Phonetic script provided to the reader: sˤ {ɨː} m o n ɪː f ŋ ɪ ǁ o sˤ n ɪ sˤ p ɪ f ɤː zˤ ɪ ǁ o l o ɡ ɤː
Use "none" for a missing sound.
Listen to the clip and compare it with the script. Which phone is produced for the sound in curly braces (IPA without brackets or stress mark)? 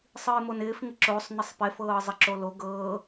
ɨː